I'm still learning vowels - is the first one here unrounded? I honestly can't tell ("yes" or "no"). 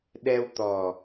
yes